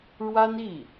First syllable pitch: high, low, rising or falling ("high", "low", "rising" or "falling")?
high